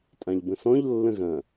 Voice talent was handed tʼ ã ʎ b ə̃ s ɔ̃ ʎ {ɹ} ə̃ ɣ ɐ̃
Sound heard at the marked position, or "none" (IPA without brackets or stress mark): lː